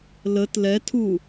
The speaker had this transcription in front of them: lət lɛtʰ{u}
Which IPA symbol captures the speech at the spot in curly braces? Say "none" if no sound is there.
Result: u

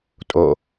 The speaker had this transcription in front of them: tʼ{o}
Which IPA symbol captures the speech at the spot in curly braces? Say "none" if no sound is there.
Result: o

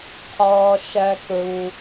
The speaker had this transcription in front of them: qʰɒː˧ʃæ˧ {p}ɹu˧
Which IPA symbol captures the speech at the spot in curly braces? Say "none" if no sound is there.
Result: k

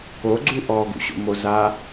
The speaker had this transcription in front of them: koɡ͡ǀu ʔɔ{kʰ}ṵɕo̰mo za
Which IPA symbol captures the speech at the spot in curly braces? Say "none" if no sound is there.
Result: ɡ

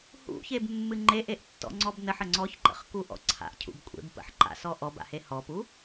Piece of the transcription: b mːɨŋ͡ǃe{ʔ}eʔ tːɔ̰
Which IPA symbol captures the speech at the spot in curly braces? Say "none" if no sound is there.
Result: ʔ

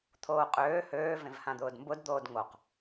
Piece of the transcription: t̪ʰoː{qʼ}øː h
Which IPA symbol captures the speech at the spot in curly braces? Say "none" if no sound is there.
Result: qʼ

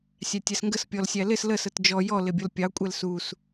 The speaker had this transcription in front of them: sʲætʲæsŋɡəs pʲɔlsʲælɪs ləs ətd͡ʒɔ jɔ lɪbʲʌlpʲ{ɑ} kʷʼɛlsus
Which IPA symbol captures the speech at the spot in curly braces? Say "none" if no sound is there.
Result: ɑ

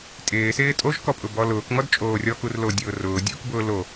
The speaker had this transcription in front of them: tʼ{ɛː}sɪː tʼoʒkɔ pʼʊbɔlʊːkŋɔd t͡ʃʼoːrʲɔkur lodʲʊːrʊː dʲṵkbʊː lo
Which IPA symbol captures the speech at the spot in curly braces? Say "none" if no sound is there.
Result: ɪː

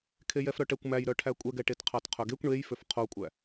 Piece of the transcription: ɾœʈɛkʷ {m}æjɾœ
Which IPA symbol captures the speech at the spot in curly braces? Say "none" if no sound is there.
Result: m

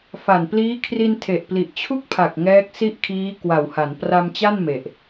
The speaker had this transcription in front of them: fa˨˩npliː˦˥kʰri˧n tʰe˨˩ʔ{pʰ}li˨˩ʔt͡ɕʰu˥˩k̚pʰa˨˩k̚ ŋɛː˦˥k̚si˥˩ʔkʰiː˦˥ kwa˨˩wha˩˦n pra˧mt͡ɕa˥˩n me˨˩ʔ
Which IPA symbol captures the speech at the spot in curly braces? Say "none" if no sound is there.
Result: p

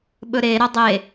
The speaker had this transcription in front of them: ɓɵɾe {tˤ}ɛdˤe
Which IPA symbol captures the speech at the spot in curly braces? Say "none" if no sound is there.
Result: ɾ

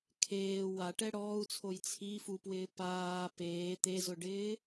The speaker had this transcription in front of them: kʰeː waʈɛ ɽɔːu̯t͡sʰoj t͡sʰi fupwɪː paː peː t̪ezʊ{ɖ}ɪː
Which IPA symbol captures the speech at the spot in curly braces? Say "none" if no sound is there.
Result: ɖ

